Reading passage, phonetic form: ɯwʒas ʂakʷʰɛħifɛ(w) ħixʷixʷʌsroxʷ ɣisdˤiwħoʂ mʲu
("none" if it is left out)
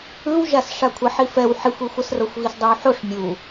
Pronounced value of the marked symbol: w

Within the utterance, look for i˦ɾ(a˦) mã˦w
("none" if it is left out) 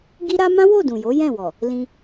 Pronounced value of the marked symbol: a˦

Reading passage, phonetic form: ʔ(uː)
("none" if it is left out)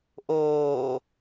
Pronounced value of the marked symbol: oː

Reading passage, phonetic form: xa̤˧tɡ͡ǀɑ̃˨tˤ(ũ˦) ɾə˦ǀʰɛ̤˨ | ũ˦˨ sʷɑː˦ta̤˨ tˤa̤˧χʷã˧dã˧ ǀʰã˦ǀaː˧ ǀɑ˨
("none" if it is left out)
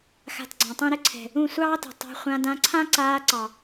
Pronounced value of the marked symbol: ũ˦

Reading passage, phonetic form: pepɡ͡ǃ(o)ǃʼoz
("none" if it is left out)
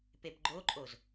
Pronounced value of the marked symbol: o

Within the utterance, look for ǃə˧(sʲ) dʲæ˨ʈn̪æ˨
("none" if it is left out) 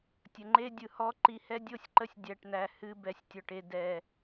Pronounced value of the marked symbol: sʲ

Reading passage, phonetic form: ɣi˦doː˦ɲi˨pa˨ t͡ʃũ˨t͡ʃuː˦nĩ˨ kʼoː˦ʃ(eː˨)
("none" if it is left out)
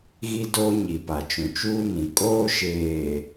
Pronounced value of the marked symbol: eː˨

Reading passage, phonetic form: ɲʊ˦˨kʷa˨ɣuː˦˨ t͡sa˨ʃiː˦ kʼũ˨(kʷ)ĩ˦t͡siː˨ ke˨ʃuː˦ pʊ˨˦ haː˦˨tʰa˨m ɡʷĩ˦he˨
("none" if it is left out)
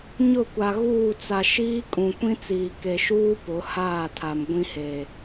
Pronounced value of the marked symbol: kʷ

